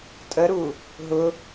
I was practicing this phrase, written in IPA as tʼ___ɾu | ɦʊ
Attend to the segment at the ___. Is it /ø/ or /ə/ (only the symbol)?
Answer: ə